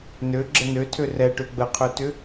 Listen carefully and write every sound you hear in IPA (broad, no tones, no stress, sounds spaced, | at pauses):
n ø ɡ͡ǁ ə n ø tʰ ø r ɛ ʈ ø ɡ͡b ə qʰ ø t ʏ